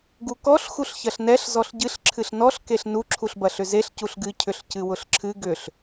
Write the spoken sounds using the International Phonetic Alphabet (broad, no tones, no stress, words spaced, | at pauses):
ɡukɔɬ xuɬçɐɬnɛɬ zɔɬɟɨɬ ǁʰɨɬnɔɬ keɬnu ǁʰuɬbɐɬʏzeɬ cuɬɡɨ cʰʏɬcɨwʊɬǁʰɨ ɡʏɬ